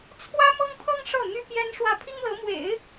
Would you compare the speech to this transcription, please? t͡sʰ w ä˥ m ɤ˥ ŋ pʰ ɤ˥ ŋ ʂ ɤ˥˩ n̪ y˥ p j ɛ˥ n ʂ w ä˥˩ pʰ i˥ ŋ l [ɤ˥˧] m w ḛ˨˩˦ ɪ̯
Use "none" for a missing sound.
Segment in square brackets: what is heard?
ɤ˧˥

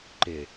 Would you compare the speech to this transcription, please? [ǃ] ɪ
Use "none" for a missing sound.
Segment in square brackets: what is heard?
ǃ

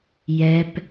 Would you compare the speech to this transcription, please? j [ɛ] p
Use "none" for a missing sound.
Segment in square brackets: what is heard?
ɛ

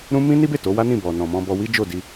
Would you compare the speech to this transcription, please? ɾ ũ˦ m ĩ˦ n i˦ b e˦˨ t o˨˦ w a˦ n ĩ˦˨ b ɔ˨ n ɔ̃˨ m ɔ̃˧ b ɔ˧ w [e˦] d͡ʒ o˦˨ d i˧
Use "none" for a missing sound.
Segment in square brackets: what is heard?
i˦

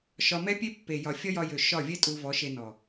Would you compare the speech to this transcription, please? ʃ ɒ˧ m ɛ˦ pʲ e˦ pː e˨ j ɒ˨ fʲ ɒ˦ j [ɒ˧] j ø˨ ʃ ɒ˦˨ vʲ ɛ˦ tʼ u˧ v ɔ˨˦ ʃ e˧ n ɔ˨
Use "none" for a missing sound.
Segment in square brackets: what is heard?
ɒ˧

